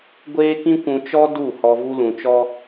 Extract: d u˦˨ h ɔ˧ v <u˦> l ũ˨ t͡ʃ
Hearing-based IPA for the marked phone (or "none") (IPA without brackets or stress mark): u˧